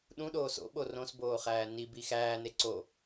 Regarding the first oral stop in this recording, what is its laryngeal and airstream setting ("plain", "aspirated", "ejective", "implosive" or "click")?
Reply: implosive